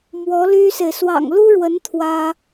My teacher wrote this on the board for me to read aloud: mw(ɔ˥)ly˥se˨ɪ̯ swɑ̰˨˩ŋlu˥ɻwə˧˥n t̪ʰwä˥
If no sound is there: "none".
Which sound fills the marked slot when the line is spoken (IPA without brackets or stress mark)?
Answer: ɔ˧˥